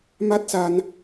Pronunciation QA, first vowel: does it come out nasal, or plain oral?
oral